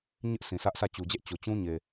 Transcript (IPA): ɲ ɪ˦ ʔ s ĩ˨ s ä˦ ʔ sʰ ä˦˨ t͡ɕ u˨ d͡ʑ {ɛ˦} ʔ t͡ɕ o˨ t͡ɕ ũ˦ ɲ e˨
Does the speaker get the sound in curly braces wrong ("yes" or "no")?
no